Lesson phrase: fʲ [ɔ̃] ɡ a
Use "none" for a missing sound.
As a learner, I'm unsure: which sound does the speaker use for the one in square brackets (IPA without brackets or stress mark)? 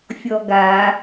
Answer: ɔ